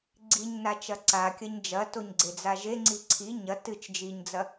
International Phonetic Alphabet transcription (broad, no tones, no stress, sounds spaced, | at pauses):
ɡ͡ǀ i ɲ n a t͡ʃ ɐ ǀ a kʲ ɐ ɲ d͡ʒ ɐ t o ɲ ɡ͡ǀ e d͡z a ʒ e ŋ͡ǀ i ǀʰ i ɲ ɐ t ɨ t͡ʃ d͡ʒ i ɲ d͡z ɐ